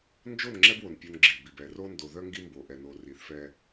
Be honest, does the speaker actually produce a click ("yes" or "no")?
yes